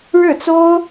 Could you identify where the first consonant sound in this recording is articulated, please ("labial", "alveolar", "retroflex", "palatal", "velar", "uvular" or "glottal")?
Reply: retroflex